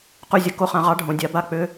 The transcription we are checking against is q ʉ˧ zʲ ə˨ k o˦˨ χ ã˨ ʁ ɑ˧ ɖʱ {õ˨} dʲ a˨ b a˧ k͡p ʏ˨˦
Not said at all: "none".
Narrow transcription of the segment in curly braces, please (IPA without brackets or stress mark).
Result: õ˨